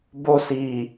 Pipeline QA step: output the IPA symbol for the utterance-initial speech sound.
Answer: b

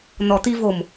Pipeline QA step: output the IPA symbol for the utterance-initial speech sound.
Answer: n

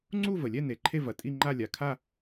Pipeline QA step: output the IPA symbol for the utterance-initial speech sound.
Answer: ŋ͡ǀ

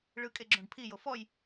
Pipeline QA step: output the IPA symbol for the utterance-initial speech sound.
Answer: ɭ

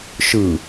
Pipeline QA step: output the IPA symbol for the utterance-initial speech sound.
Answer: ʃ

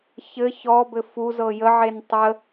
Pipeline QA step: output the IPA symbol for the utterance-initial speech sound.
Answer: ç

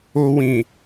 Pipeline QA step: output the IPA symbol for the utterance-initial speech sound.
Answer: o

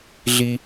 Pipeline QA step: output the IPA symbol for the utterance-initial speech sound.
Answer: ɮ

